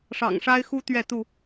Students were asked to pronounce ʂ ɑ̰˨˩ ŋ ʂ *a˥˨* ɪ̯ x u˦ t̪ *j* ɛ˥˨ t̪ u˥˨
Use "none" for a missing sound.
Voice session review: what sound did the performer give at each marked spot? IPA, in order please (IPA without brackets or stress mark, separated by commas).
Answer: a˦, ɥ